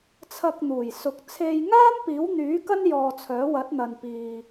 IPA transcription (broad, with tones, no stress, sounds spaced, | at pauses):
t͡sʰ ɐ˧ k̚ n̪ uː˨˩ j s ʊ˨ k̚ t͡sʰ e˧ j ŋ aː˥ m p iː˨˥ w n̪ yː˨˥ k ɐ˥ n j ɔː˧ t͡sʰ œː˨˥ w ɐ˨˥ t̚ n̪ ɐ˨ n p iː˨